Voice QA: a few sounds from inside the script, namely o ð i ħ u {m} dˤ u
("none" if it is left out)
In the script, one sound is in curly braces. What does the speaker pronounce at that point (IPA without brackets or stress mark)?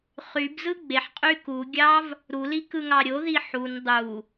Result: n